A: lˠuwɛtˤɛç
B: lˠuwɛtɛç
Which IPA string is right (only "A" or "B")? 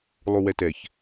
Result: B